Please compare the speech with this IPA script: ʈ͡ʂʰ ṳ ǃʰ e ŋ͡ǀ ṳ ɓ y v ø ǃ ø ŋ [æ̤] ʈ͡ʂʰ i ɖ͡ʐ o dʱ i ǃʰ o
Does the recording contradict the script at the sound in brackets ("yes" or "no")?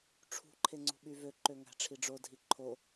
no